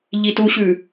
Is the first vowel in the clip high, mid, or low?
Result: high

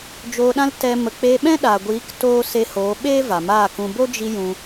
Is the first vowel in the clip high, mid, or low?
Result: mid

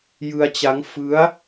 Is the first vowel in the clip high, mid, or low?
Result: high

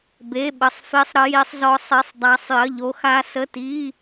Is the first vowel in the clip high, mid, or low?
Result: mid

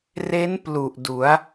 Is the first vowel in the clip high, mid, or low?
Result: mid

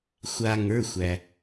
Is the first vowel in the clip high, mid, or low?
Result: low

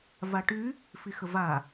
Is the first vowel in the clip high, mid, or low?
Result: low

